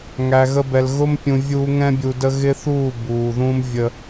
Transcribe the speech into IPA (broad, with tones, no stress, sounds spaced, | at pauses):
ŋ æ˨ ɣ ə˧ b ɛ˨ l ɣ ʊ˦ m pʲ ũ˨ vʲ uː˧ ŋ ɛ̃˦ bʲ u˧ d ə˦ ɣ ɪ˦ θ uː˦˨ b uː˨ ð ũ˦ m vʲ ə˦